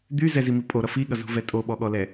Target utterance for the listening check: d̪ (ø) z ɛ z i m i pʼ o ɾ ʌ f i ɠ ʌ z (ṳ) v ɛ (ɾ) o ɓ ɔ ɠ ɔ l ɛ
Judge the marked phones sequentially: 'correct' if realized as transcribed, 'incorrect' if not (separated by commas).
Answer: incorrect, correct, incorrect